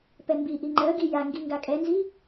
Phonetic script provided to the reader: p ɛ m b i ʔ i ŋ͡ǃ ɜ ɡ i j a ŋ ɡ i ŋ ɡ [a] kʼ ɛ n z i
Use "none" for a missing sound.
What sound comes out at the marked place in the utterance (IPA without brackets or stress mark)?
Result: a